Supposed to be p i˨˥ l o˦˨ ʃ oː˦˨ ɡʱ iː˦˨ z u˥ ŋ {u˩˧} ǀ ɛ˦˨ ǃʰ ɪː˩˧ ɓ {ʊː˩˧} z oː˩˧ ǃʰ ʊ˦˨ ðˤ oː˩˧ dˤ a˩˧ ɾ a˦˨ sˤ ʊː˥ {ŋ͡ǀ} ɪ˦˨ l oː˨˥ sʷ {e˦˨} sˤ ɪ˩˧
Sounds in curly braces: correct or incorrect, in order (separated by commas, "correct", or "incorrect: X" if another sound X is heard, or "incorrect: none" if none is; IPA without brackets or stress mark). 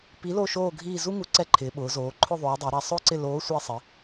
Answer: incorrect: u˨˥, correct, incorrect: ǀ, correct